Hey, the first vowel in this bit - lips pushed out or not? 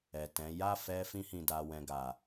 no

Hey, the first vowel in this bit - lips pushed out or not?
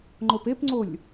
yes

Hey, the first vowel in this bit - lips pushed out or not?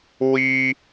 no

